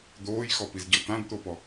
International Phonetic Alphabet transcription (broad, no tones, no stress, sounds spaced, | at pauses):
d̪ oː j x ɔ p i z ɟ ɤ t̪ ã d t̪ o p ɔ